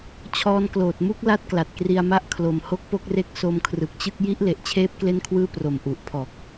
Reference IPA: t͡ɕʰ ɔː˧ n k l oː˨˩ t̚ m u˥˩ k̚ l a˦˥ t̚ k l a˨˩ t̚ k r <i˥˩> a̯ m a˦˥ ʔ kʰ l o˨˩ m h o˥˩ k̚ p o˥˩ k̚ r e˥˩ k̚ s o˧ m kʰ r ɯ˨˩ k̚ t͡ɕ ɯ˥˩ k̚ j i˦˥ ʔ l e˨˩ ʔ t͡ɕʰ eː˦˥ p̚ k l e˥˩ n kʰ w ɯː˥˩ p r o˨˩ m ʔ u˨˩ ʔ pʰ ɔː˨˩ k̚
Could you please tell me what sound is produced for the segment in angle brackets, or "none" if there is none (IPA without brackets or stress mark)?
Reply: i˧